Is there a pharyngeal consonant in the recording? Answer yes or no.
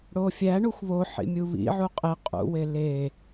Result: yes